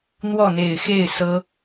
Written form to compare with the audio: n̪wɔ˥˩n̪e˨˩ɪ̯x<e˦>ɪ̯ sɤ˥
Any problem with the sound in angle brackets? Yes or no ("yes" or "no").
yes